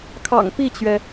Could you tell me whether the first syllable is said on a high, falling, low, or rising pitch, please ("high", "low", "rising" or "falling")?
low